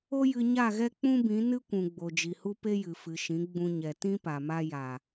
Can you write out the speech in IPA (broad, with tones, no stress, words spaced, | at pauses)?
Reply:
o˦jɨ˧ ɲa˦˨ɣɛ˦k͡pũ˦bĩ˨˦ nɨ˦kʷũ˨ ɡ͡bo˨d͡ʒi˨hu˦ pe˦jɨ˨fɨ˨ʃĩ˨˦ ɡ͡bũ˧ɲɛ˨ tĩ˦pa˨ ma˦ ja˨